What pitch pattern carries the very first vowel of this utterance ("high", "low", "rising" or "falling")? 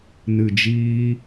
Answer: low